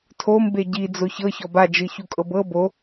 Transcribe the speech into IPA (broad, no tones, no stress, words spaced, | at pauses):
tʰombe ɟid͡zo çɤçɔb ad͡ʒɯçukʼɤb ɤ bo